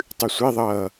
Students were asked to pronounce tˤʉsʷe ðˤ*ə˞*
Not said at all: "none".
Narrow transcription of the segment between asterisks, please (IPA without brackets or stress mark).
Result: ʌ